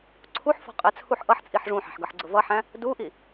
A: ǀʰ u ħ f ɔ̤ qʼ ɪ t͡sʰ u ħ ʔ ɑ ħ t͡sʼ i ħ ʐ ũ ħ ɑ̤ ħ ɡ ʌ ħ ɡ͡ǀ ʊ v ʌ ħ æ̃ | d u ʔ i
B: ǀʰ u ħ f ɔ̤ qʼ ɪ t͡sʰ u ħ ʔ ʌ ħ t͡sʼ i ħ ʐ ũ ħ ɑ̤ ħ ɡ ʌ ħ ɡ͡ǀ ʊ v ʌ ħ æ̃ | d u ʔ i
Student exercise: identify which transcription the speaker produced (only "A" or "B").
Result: B